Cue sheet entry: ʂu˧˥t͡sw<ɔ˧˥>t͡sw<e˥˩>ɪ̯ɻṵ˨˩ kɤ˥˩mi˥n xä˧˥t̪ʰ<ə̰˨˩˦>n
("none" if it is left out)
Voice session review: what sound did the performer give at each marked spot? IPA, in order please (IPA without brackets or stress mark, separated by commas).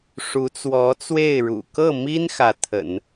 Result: ɔ˧˥, e˥˩, ə̰˨˩˦